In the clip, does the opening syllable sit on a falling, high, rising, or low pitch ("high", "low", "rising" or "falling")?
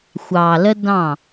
low